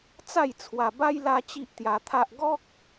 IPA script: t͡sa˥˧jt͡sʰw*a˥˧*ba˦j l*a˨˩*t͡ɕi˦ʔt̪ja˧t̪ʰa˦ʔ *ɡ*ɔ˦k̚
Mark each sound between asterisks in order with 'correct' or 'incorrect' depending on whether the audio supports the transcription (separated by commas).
incorrect, incorrect, correct